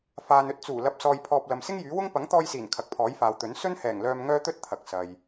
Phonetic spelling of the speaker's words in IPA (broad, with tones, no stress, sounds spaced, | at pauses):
f aː˨ n ɵ˥ t̚ t͡s uː˨˩ l ɐ˨˥ p̚ s ɔː˧ j pʰ ɔː˧ p̚ l ɐ˨ m s ɪ˥ ŋ j yː˨˥ w ʊ˥ ŋ p ɐ˨˥ ŋ t̪ ɔː˧ j s iː˨˩ n kʰ ɐ˨ k̚ pʰ ɔː˨˥ j f aː˨ w t̪ ɵ˨˥ n s ɵ˥ n h ɛː˨˩ ŋ l œː˧ m ŋ œː˥ t̪ ɵ˥ t̚ t̪ʰ ɐ˨˥ k̚ s ɐ˧ j